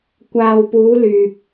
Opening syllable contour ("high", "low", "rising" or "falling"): low